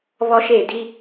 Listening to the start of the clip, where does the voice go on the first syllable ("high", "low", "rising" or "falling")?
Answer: high